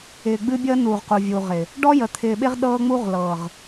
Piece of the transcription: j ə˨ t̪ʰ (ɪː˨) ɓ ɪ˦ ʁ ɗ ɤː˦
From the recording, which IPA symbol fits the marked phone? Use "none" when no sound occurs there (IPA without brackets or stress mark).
ɪː˨